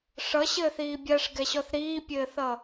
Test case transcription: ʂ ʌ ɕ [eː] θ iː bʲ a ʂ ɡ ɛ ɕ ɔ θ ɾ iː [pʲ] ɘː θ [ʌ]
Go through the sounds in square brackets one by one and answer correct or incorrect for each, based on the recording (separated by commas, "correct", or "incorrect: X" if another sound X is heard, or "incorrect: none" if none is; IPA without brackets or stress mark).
incorrect: ɘː, correct, correct